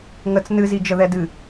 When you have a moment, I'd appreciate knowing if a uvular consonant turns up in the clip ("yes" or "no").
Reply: no